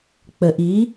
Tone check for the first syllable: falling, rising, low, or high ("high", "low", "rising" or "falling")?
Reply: low